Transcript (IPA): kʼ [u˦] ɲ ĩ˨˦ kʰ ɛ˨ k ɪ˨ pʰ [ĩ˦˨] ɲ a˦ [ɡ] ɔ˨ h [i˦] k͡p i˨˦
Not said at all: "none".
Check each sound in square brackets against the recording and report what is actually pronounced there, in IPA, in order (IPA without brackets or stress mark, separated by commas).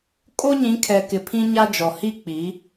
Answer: o˦, ĩ˦, d͡ʒ, i˦